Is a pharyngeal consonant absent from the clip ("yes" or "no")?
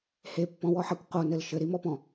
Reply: no